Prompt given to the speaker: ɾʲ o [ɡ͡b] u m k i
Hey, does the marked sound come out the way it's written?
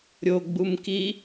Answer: yes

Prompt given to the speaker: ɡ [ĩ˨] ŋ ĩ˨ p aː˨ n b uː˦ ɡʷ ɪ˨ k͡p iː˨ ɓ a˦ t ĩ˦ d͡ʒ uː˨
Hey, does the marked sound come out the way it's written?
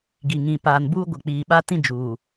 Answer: no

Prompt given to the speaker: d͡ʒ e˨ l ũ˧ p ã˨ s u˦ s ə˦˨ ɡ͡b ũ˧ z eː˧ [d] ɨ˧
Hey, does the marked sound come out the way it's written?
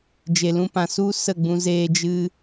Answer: no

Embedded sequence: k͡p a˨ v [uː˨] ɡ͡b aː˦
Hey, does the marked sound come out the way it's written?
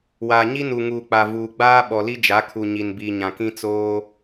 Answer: yes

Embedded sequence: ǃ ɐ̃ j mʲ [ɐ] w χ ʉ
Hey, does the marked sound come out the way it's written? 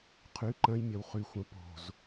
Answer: yes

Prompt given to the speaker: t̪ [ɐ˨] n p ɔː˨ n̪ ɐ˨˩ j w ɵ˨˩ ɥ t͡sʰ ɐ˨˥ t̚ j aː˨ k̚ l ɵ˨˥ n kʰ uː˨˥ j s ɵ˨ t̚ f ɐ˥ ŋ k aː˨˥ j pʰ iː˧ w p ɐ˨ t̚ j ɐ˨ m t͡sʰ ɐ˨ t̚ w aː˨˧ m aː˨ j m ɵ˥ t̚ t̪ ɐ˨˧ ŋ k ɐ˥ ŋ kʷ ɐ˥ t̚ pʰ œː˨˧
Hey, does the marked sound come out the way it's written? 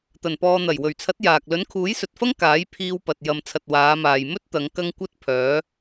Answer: no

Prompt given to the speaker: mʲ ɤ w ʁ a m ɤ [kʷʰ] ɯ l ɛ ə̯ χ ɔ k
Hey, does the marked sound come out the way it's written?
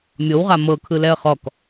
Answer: no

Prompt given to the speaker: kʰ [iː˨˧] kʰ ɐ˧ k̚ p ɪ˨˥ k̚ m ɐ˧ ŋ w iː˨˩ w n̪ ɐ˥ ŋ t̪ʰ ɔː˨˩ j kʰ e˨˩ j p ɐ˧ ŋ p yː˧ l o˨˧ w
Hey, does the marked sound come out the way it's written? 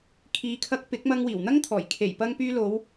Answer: no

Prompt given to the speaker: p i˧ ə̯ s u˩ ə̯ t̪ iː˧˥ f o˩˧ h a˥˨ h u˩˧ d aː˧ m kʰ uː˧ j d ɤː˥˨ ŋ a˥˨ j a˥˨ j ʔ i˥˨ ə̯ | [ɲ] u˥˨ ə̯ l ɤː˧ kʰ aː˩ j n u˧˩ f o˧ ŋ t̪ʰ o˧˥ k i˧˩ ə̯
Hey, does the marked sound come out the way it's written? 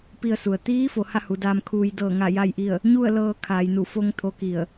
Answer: yes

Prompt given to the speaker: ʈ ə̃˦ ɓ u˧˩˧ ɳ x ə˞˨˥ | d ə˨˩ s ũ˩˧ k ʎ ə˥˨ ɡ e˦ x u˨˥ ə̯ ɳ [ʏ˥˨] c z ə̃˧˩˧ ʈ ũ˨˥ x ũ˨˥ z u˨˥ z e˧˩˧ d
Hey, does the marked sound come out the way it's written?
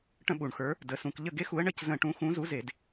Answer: no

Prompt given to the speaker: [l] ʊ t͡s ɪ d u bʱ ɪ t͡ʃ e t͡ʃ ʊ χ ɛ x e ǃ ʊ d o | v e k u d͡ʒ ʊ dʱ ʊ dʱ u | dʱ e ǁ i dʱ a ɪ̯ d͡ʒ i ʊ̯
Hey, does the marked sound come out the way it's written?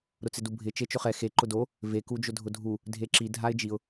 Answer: no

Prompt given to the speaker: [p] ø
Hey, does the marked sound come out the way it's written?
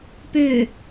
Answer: yes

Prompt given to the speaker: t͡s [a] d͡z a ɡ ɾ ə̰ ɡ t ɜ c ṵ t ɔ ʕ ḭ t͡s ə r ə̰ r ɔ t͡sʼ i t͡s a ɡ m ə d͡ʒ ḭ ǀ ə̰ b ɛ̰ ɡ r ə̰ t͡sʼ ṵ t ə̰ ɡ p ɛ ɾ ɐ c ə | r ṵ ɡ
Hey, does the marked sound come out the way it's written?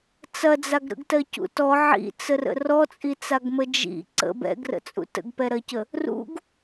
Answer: no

